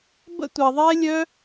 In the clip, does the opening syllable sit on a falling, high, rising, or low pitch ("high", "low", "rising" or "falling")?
high